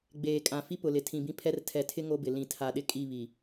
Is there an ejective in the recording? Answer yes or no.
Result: yes